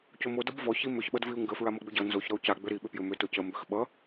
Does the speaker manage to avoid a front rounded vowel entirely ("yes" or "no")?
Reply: no